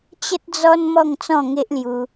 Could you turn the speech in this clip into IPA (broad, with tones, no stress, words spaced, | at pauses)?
t͡ɕə˦t̚d͡zɔ˦n mɔ˥˧ŋt͡sɔ̃˥˧ŋe˦ʔlju˧